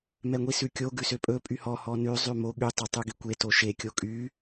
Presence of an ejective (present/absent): present